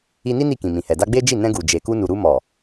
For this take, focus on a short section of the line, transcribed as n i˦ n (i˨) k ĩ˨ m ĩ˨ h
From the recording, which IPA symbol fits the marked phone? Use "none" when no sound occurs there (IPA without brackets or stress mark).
i˦˨